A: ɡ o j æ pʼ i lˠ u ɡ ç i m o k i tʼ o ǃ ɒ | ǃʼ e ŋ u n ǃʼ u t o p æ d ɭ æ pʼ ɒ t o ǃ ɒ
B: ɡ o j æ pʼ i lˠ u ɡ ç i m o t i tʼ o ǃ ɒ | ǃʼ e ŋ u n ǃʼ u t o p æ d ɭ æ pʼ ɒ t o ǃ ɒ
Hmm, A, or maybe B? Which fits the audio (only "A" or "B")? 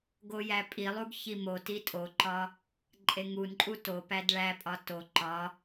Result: B